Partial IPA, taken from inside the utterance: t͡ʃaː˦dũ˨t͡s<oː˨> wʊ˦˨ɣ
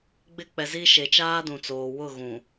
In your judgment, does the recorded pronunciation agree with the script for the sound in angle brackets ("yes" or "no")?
yes